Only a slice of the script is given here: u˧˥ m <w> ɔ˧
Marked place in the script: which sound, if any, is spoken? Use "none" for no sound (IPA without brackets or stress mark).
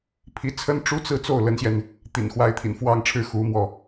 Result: w